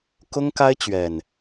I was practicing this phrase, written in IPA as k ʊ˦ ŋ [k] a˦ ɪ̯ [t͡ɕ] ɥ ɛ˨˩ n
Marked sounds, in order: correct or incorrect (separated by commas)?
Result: correct, correct